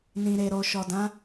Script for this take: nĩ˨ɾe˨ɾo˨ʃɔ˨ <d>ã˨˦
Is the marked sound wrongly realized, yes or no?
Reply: no